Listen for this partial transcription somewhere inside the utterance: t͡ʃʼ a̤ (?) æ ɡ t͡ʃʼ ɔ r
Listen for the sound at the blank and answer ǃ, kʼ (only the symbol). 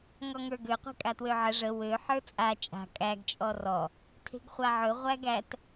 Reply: kʼ